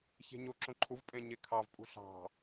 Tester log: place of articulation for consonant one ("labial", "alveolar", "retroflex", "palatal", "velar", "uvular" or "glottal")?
palatal